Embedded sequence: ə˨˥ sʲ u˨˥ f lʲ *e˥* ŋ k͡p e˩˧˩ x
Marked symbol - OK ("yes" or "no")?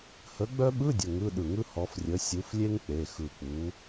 yes